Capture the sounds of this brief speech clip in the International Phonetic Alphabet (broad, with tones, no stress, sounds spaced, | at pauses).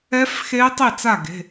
ɛ˦˥ f x e˦˥ tˤ i˥˩ t͡s a˥˩ ɡ e̤˩˧˩